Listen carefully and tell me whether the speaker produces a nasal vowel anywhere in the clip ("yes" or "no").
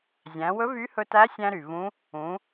yes